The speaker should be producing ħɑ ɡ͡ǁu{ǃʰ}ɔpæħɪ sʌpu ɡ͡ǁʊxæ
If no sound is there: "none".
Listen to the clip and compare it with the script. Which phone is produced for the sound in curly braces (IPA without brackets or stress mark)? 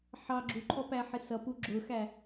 ǃʰ